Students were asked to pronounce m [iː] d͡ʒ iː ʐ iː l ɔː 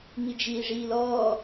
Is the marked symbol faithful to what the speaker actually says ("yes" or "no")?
no